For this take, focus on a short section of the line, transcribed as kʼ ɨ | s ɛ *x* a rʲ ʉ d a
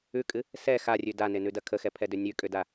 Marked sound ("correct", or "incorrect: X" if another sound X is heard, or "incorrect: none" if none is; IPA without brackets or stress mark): correct